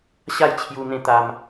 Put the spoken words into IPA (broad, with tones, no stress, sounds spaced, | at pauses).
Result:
ɕ a˥˧ j t͡ɕʰ j u˧ n̪ ẽ˧ t̪ a˧ m